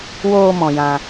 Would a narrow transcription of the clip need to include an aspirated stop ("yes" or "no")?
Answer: no